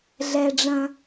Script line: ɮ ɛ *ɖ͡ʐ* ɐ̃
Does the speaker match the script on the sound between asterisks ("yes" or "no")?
yes